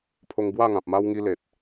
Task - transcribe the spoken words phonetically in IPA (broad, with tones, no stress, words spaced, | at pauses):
pʰo˧ŋbwa˥˧ŋã˨p̚ma˦w ŋi˦le˨t̚